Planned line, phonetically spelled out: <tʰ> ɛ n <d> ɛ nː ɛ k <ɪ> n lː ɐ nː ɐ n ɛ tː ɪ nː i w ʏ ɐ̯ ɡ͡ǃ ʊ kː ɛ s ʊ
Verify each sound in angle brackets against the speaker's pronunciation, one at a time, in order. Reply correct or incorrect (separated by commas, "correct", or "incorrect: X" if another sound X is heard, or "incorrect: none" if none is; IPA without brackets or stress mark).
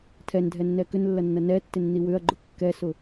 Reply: correct, incorrect: dʱ, incorrect: ʏ